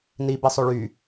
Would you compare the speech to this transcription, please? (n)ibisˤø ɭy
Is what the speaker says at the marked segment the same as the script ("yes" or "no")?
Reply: yes